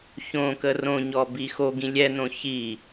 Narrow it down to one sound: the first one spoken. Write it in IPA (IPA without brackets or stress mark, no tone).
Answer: ç